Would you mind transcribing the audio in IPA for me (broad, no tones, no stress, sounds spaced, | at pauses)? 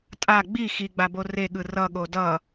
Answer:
tʼ a ɡ͡b i x i ɡ͡b a b o r e ɠ ɯ r ʌ ɠ o d ʌ